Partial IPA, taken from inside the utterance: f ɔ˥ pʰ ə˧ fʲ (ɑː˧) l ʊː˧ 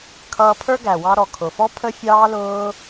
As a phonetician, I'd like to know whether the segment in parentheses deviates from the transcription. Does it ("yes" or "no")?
no